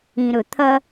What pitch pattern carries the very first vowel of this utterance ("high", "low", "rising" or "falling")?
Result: low